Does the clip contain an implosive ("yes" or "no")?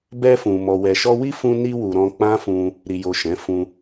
no